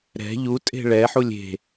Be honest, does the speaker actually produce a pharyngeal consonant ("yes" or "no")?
yes